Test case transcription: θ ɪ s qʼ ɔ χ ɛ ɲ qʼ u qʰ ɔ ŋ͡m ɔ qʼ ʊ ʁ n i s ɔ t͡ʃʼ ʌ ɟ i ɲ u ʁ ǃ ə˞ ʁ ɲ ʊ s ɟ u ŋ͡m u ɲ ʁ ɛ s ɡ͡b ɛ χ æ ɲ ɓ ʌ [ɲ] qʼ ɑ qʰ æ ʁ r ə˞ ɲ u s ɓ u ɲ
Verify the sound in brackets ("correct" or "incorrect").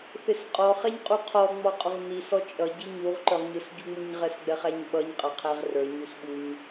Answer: correct